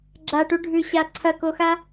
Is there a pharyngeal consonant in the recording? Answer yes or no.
no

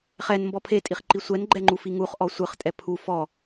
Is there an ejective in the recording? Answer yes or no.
yes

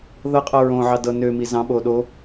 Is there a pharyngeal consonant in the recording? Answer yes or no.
yes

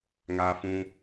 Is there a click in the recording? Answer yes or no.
no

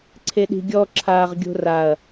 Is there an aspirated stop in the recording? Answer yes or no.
yes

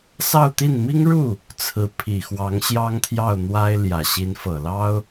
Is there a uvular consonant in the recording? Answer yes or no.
no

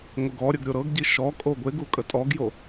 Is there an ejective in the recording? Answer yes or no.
yes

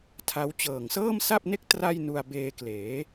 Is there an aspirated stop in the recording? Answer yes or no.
yes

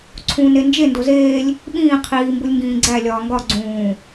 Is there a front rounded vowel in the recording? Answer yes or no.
no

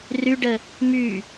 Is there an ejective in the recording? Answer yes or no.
no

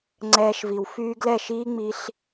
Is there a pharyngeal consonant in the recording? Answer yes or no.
no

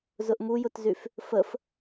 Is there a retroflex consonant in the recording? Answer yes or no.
no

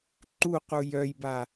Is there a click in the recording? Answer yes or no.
yes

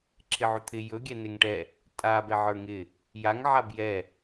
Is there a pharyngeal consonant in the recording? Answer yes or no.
yes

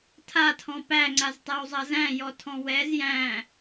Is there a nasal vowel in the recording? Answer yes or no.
yes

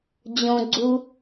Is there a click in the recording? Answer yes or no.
yes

